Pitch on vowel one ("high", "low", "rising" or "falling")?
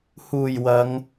low